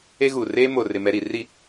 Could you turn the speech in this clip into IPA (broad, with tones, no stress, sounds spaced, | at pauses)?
e˦ ɣ u˨ r eː˦ m o˨ r ɪ˨ m ɛ˨ ɾ i˨ r i˨